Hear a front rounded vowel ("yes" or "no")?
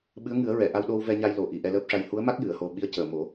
no